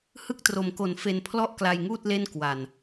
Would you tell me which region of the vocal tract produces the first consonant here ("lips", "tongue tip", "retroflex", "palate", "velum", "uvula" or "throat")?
throat